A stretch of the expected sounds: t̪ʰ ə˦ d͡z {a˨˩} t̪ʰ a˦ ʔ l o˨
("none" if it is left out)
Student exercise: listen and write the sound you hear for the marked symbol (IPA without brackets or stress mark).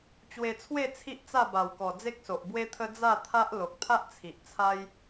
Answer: a˥˧